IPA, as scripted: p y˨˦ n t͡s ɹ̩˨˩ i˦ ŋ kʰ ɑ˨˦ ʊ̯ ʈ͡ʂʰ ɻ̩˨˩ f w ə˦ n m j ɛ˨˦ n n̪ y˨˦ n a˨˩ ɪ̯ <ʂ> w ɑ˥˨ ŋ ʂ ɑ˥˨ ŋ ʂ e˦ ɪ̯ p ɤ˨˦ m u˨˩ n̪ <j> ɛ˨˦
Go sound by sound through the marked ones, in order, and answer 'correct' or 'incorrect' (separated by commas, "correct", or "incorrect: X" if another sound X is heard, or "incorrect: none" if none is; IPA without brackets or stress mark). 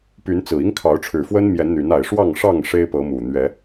correct, incorrect: ɥ